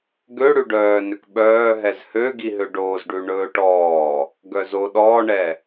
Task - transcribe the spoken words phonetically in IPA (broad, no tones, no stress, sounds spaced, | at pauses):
ɡ ø ɽ ʉ ɖ œː n ø k ɓ œː ɦ ɛ z h ø ɡ i ɦ ø ɖ oː z ɖ ʉ ɳ ɵː ʈ ɔː | ɡ œ z o ɗ ɔː ɳ ɛ